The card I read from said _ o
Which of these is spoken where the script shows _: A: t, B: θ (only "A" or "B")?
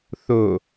B